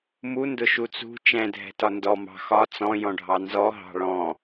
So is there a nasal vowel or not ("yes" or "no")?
yes